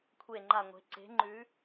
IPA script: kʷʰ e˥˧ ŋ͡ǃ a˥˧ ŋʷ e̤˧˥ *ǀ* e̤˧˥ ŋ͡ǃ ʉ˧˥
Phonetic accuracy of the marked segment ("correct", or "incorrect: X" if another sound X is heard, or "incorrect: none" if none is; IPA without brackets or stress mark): correct